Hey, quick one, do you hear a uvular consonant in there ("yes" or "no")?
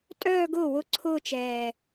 no